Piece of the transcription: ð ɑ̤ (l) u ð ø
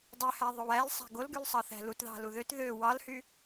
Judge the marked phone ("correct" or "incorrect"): correct